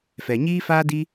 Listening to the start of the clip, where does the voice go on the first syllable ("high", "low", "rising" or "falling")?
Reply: low